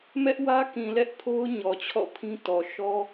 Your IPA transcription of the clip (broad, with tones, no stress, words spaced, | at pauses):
mɛ˦ʔwä˦ kĩ˨lɛ˦ʔpʰo˦ʊ̯ ɲɔ˨t͡ɕʰɔ̰˦˨pʰĩ˦ tɔ˨ʃɔ˦